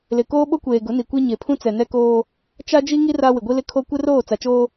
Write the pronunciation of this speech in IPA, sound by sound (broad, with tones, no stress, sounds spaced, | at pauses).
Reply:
l ɪ˨ k oː˦ ɓ o˦ kʷ eː˨ ɡ ʊ˨˦ n i˨ kʷ e˦ ɲ e˨ pʰ ũ˦ t͡s ɛ˨ n ɛ˦ k oː˦ | t͡ʃ a˦ d͡ʒ i˦ ŋ i˦ r a˦ w ɪ˨ ɡʷ i˦ l ɪ˦ kʰ o˦ kʷ ɪ˦ r oː˦˨ t͡s a˨ t͡ʃ oː˦